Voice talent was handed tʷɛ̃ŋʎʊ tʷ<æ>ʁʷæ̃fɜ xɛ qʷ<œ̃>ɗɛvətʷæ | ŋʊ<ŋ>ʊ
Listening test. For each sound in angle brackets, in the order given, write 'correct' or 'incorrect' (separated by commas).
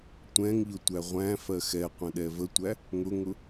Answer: correct, incorrect, correct